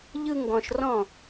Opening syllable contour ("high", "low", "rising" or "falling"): high